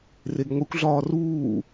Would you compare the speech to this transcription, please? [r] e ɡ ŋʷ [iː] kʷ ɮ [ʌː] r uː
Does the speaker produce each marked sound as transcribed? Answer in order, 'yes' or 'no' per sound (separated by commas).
yes, no, no